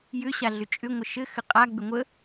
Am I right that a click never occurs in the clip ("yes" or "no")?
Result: yes